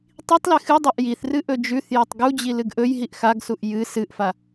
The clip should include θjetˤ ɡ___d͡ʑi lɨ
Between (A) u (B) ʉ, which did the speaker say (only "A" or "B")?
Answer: A